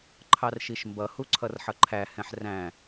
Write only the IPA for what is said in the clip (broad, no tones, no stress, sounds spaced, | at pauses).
ǃʰ ɑ r ʃ i ʃ m b ʌ h u ǀʰ ʌ r ħ ʌ ǃʰ æ h ɛ̃ ħ r æ̃